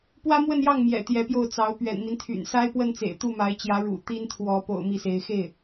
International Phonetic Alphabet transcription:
pwä˥mwə˥˧njɑ˥˩ŋ mjɛ̰˨˩ t̪jɛ˧˥pjo˥˩ʊ̯t͡sɑ˧˥ʊ̯ pɥɛ̰˨˩nmi˦nt̪ʰy̰˨˩n sa˥ɪ̯pwə˥˩nt͡sḛ˨˩ɪ̯ t̪u˥˩ma˧˥ɪ̯t͡ɕjä˧˥ ɻṵ˨˩ t̪i˥nt̪ʰwɔ˧˥ po̰˨˩ʊ̯ mi˥˩se˧˥ɪ̯ xe˥˩ɪ̯

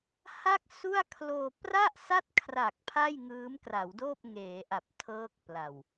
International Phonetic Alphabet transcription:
ha˥˩k̚su˥˩a̯kʰloː˧ pra˥˩ʔsa˥˩t̚kʰra˨˩k̚ pʰa˥˩jŋɯː˦˥mkra˩˦wdoː˥˩p̚ ŋeː˩˦ʔa˨˩p̚ tʰɤː˦˥k̚pla˨˩w

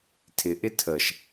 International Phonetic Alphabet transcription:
tʰɪʔɪ tʰəʃ

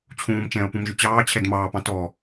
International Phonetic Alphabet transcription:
t͡ɕʰũːmt͡ʃɛ̃ːʊ̯pũmʒʏ t͡ɕɑːt͡ɕʰɛd mɑːpɑ̃ tɔ

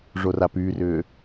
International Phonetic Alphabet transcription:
ʐorapyːrʏː

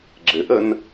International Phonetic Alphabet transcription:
ɡ͡ǁɘʔən

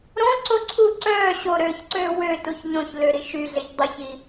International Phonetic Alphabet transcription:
ɾõ ǀoǀʰu ǀœː ɕoɾøːçǀøː wø tuçɲõçlø ɾiʃyɮeç dˤyçi

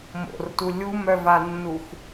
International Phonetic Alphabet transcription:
mo̰rtu lʲumœvanːuxʷ

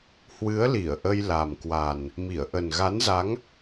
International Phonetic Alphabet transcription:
hwɨ˨˦ə̯li˧˩ə̯ ʔə˧jla˨˩mkwa˨˩n | mi˧˩ə̯ʔə˨˩nɣa˨˦nza˨˦ŋ

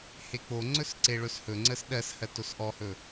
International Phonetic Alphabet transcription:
hek͡poŋ͡ǀɵs ǀeɭɵshɵŋ͡ǀəs ɗɜshɜ tosʔɔhɵ

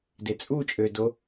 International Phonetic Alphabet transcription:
det͡sʼut͡ʃʼødo

